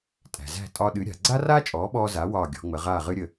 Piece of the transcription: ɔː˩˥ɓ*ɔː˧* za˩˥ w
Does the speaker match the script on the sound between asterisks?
yes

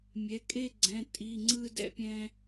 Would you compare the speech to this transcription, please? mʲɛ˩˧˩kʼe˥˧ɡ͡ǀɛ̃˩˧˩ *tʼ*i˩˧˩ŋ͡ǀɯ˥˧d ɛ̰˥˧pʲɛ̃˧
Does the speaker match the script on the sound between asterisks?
yes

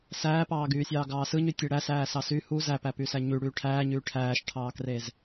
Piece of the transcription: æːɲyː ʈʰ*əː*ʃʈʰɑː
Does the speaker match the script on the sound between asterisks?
no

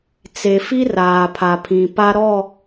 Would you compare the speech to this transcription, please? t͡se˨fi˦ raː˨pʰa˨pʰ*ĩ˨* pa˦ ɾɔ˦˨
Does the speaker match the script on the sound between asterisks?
yes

